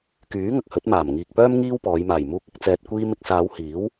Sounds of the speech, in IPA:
k yː˨˥ ŋ ɐ˨ k̚ h ɵ˨˥ t̚ m aː˨˩ m ŋ iː˨ k̚ p œː˥ m ŋ iː˥ w p ɔː˨˧ j m aː˨˩ j m uː˧ k̚ ɪ˨˥ k̚ t͡s ɛː˧ t̚ kʷ iː˧ m ɪ˧ k̚ s aː˨˧ w h iː˨˥ w

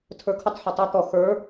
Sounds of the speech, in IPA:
tʰ ə˞ kʰ u tˤ ħ u tˤ a t̪ ɔ x ə˞

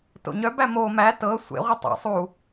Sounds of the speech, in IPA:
t o̰ ɲ œ b æ m o m æ t ɤ sʷ ḛ ʁʷ i tˤ a̰ sˤ u

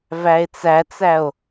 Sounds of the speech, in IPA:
v æ e̯ t͡s æ t͡s æ o̯

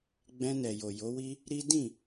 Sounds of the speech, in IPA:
ɡ͡b ɛ̃˧ n ɛ˨ j o˨ j o˨˦ w i˦ | ɾ i˦ d ĩ˦˨

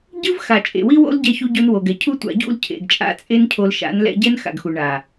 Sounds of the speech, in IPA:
ɟ ɯ˦ v x a˨ t͡ʃʼ ḛ˨ w i˦ w o̰˦ l ɟ ɛ˧ ç u˧ ɟ o˧ n w o˨ ɡ ɛ˨ cʰ u˦ tʷ a̰˧ ɟ ṵ˦˨ l cʰ ḛ˨ ɡ t͡ʃʼ a̰˧ t͡sʼ e˦ n cʰ o˧ l ʃ a̰˨˦ n l ɛ̰˧ ɟ ɛ˦ n x a̰˨ ɡ x u˨ ɳ a˨

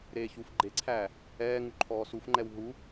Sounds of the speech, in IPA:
ɾ eː ç u f ɡ͡ǃ e ǀʰ æː | ɛː ŋ u ǃʰ ɔː s u f ŋ͡ǃ ɛ w ɦ u

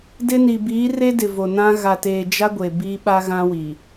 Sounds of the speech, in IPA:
d ɪ˦ n i˨ b iː˨˦ r e˦ d ɪ˨ v o˨ n ã˦ ɣ a˨ t eː˨ d͡ʒ a˦ ɡʷ e˨ b iː˦ ɓ a˦ ɣ ã˦ w i˨

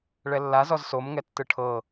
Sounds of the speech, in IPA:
ɭ ɛ lː a z ɔ z s o m ŋ ɛ tː ɯ ʈʰ ɤ

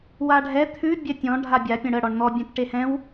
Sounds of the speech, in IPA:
w a ɖʱ ɛ t̪ʰ ʉ bʲ ɛ tʲ ɔ̃ ɖʱ a bʲ a pʲ ə̃ ɽ ə ɽ ɔ ɳ n̪ ɔ bʲ ɛ̃ t ʈ e h ɛ̃ w

